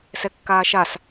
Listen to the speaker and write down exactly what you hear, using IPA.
s ɛ kː aː ʃ a s

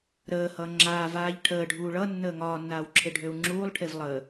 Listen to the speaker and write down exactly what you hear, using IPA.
ɾ əː h ʌ ŋ͡ǁ aː v aː ʎ ʈʰ əː ɖʱ uː ɭ ʌ nː əː ŋ ɒː nː aː w ǁʰ e ɖʱ ø u̯ ŋ͡ǁ uː lˠ ʈʰ e v lˠ ə

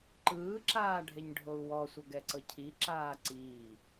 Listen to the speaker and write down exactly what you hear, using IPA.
ǃ ɯː ǁ aː ɖʱ e ɲ ɖʱ o u̯ w ɔ sʷ ɤ ɡ ɛ ǀ ɤ cʰ i ǁ aː ǀ iː

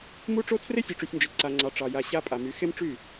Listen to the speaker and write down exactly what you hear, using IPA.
m u˦ ʈ͡ʂ o˦ tʰ r e˦ sʲ u˨ ʈ͡ʂ y˨ sʲ n d͡ʒ e˨ ǀ a˨ ŋ͡ǀ ɑ˨ ʈ͡ʂ ɑ˨ j a˨ ɕ a˦ pʼ a˨ m y˨˦ x e˦ m ʈ͡ʂ y˦˨

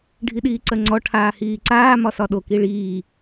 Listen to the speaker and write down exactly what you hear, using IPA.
ɖʱ i ɗ iː ǀ ɜ ŋ͡ǀ ɔ ʈʰ aː h iː ǀ aː m ɒ s ɒ ɗ o k i ɭ iː

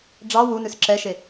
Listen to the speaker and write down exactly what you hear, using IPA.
ɖ͡ʐ ɑ w u n ʉ s ǁ ɛ ʃ e

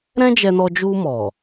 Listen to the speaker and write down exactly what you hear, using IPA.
ɾ ɛ̃˦ d͡ʒ ɛ˧ n ɔ˧ d͡ʒ u˧ m ɔ˨

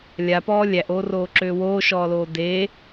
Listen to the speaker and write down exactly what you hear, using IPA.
lʲ a p ɔː lʲ æ ʔ oː r oː ǁ øː w oː ʃ ɔː l oː d eː

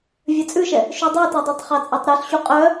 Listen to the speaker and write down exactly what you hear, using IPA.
vʲ ɜ t͡sʼ ʉ ʃ ɛ | ʃ u dˤ u t ɜ dˤ ɜ tˤ χ ɑ t͡sʼ ɑ tˤ ɾ œ ɬ ɕ u qʼ œ

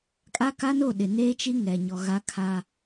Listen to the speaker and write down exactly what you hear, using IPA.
kʼ a˦ k a˦ n o˦˨ ɗ ɪ˨ n eː˦ t͡ʃ i˦ ŋ ɛ˨ ɲ ɔ˨ ɣ a˦ kʰ a˦

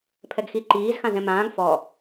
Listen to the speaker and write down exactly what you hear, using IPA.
pʰ ɛ ɡ x i ǃ iː z x ã z ɛ̃ m ãː ɡ f ɔ

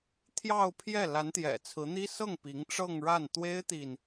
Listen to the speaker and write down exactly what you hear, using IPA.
t̪ʰ j ɑ˥˧ ʊ̯ pʰ j ɛ˥˩ l a˧˥ n t̪ j ɛ̰˨˩ t͡sʰ ɹ̩˧˥ n̪ i˥ s ɤ˥˩ ŋ p i˧˥ ŋ ʈ͡ʂ ɤ˥˧ ŋ ɻ a˥˩ n t̪ w e˥ ɪ̯ t̪ i˨ n

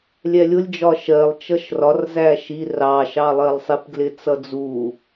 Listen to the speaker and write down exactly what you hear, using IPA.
lʲ ɛ lʲ ʊ lʲ d͡ʒ ɒ ʃ ɜ lˠ t͡ʃ ʌ ʃ r ɒ r z æ ʃ i r ɑ ʃ ɑ lˠ ɜ lˠ sˤ i p ɡ l ɪ t͡s ʌ d͡z u

